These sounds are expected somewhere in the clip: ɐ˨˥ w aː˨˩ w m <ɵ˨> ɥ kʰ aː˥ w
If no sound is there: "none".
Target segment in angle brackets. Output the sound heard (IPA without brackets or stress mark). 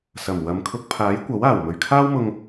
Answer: ɵ˨